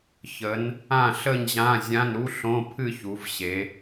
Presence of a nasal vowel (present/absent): present